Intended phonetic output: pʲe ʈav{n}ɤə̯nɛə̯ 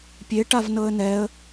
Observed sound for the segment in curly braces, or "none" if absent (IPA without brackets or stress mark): n